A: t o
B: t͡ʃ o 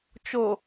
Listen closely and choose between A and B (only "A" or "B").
B